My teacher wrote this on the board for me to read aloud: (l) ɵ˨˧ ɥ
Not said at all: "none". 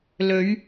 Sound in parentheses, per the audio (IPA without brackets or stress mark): l